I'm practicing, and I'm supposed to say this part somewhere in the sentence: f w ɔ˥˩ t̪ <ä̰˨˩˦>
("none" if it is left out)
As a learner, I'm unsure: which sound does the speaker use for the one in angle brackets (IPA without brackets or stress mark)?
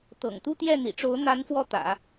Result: ä̰˨˩˦